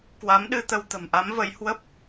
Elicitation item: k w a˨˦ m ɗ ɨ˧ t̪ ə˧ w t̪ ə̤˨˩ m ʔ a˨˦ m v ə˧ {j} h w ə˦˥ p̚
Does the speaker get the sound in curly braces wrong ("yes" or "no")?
no